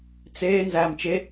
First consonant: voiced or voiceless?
voiceless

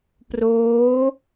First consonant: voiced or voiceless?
voiceless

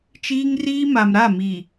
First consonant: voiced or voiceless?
voiceless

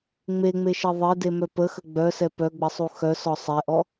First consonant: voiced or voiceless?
voiced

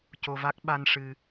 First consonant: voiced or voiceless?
voiceless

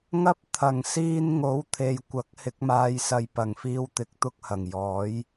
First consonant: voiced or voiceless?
voiced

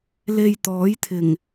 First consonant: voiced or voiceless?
voiced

